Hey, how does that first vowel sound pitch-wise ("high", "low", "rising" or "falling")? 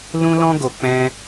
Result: high